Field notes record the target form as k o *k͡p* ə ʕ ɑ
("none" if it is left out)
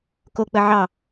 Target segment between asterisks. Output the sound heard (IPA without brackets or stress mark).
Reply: k͡p